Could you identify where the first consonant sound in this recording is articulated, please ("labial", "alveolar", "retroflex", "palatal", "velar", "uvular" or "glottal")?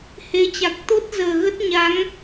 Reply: glottal